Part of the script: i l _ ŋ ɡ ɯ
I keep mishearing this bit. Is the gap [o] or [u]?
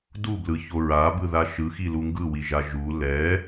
u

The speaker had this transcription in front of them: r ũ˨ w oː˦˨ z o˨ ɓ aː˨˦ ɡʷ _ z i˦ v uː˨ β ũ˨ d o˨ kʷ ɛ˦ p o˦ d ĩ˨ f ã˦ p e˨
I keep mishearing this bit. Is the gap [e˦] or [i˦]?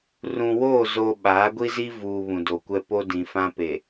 i˦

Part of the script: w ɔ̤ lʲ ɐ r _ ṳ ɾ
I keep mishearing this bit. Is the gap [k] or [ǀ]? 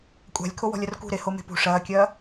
k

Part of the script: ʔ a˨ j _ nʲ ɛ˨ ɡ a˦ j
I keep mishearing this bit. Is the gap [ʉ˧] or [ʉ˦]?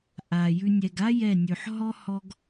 ʉ˧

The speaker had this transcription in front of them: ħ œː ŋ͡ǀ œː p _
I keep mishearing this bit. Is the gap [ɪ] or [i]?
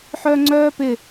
ɪ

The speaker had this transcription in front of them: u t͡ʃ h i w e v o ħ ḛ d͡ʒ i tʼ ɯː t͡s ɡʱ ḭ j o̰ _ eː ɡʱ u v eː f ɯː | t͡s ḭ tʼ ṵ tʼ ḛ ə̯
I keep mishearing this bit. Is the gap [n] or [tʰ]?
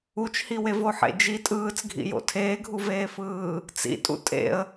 tʰ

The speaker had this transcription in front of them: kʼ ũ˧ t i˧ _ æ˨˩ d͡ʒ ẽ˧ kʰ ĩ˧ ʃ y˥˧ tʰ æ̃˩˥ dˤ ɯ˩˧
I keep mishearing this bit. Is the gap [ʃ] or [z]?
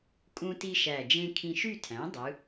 ʃ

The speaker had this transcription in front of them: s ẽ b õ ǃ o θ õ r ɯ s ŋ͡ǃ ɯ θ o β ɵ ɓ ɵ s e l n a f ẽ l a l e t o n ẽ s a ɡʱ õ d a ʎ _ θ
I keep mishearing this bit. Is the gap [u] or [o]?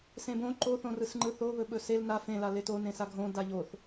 o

